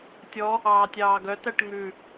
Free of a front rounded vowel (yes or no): no